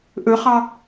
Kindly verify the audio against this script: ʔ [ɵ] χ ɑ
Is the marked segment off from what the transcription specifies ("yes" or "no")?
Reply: no